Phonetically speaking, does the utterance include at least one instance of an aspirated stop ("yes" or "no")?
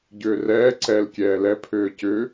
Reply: yes